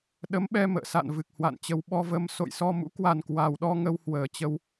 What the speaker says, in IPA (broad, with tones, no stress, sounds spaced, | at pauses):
ɗ ə˨˦ m ɓ ɛ˧ m ə̰ː˧˨ s a̰˧˨ n v ɨ˨˩ k̚ h w a̰˧˨ n t͡ɕ ə˧ w ɓ ɔ˧ v ə˧ m s o̰˧˨ j s ɔ˧ m ṵ˧˥ k w a˨˩ n k w a˨˩ w ɗ ɔ˧ ŋ ə˧ w h w əː˨˩ t͡ɕ ə˧ w